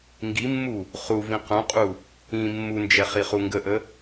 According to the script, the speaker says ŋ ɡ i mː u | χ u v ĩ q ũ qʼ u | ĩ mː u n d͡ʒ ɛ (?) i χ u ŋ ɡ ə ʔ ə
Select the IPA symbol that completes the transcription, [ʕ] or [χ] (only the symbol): χ